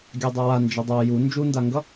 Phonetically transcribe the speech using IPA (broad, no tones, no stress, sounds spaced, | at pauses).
ɡʲ a dˤ ʌ w a n d͡ʒ ʌ dˤ a j u n d͡ʒ u n d a ŋ ɡ ʌ